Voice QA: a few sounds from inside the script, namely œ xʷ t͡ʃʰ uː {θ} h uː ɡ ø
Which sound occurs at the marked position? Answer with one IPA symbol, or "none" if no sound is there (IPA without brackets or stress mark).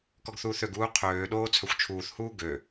θ